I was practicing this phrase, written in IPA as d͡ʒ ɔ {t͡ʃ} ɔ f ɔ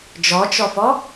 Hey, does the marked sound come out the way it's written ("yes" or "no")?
yes